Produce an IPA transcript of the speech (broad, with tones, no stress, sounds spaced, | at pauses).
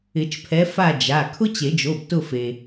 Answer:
ɪ˨˩˦ t͡ʃ pʰ ɛ˨˦ f a˦˨ d͡ʒ a˩˧˩ kʰ ʊ˥ t͡ɕ e˨˩˦ d͡ʒ o˩˧˩ b t ʊ˦˨ f e˩